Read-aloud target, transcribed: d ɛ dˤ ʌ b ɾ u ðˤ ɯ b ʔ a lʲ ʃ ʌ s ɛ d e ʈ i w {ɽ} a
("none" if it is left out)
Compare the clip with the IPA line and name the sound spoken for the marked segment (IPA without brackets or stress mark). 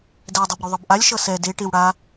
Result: ɽ